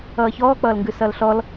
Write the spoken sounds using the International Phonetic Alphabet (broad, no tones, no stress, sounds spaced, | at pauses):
ʌː ç ɔː k͡p ʌː l ŋ ɡ ʉ s ʌ l ɬ ɔ l